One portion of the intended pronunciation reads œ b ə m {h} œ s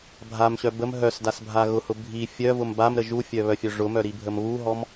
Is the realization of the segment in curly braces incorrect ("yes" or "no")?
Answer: yes